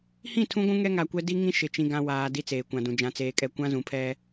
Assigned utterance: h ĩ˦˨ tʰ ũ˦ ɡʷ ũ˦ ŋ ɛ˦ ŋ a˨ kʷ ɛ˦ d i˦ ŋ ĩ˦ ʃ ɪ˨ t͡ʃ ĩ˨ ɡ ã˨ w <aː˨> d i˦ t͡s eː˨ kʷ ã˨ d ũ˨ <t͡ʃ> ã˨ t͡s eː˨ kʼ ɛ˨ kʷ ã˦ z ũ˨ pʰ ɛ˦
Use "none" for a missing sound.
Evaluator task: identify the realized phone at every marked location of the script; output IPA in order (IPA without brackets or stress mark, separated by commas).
aː˨, d͡ʒ